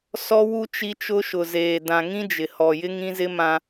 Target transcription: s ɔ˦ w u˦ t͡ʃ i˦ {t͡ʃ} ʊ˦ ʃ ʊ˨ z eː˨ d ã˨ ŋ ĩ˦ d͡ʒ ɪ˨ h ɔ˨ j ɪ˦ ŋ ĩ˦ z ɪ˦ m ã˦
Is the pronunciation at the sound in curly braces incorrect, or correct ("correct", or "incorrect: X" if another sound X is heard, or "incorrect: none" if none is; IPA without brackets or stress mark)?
correct